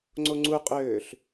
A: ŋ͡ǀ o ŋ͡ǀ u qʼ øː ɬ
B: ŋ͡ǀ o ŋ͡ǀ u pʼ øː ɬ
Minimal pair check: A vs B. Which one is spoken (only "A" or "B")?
A